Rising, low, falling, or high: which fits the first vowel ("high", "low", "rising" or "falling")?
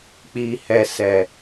low